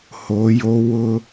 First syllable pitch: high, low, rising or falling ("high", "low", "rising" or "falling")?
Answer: rising